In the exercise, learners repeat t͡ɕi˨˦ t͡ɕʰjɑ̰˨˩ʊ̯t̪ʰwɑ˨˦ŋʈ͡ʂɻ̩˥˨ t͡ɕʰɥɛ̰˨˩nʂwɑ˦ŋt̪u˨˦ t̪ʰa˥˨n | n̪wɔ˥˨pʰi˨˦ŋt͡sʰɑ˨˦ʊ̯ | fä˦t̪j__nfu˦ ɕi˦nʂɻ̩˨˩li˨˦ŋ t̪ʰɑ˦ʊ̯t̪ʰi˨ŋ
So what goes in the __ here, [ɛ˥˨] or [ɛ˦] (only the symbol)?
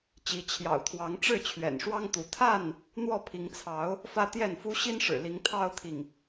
ɛ˥˨